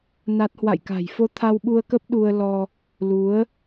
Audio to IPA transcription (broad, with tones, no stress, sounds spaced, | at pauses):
n a˦˥ t̚ h w a̰˧˨ j k a̤˨˩ j f o˧ t̪ʰ a˧ w ɓ u˧ ə̯ k ə˦˥ p̚ ɗ u˧ ə̯ l ɔ˧ | l u˨˦ ə̯